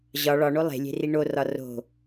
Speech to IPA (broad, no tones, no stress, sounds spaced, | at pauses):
ʑ ɒ ɭ ɒ ɳ o lˠ e̤ lʲ e̤ r i ɳ o r ɒ r o̤